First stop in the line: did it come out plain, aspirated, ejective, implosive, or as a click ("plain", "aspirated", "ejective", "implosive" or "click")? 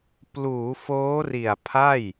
plain